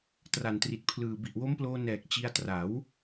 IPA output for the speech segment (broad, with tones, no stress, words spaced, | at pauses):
tra˨˩ntri˨˩t̚pʰlɯː˨˩ bi˨˩ʔwo˦˥mploː˧ nɛː˨˩k̚ t͡ɕi˧a̯tra˩˦w